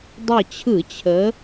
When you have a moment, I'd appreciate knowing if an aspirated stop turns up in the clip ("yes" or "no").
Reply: yes